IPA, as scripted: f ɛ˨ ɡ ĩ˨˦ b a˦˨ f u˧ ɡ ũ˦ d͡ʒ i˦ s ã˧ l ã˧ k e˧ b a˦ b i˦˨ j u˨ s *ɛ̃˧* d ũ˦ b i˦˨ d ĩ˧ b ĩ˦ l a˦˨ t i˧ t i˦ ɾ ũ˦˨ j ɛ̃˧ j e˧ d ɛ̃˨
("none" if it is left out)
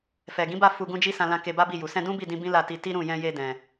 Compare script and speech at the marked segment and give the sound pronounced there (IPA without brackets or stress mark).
ɛ̃˧